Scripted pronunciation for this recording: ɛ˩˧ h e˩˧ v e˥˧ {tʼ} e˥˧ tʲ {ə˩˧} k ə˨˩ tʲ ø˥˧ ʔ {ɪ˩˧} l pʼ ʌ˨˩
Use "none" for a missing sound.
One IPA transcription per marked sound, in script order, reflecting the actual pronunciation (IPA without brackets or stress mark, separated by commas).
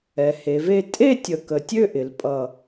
tʼ, ə˨˩, ɪ˩˧